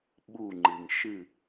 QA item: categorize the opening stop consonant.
implosive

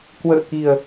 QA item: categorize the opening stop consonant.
plain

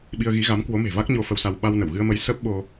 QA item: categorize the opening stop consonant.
implosive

